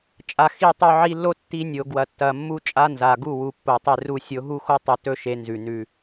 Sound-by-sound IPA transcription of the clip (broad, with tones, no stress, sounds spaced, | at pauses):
t͡ʃʼ a˨ x i˦˨ tˤ o˧ ʕ i˧ lː o˦ tː i˧ nʲ o˨ ɡ w ɐ˨ tː ɐ˨ mː u˦ t͡ʃʼ a˦ n z a˨ ɡ u˦˨ w u˨ pː o˨ tˤ e˧ r u˧ sʲ o˨˦ ɦ u˦ x o˦ tˤ ɵ˧ t ɵ˦ ʃ e˨˦ n z ʉ˨ n ʉ˧